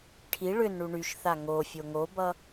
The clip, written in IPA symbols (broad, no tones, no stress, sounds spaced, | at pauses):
ʈʰ i ɭ ʏ n ɳ u ɳ y ʃ θ a ŋ o fʲ o ŋ o b ʌ